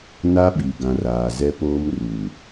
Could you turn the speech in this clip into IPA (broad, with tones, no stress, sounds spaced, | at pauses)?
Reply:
n a˦ ɓ i˨ ɡ ã˨ r aː˨ z ɛ˦ p oː˦ m r u˨